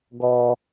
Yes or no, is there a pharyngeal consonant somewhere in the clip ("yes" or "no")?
no